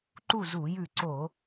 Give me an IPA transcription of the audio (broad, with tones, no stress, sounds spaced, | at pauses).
ǃ u˥˨ z u˧˩˧ j ʉ˧˩ ǀ o˧˩˧